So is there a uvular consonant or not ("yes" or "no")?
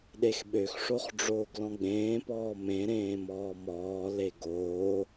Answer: yes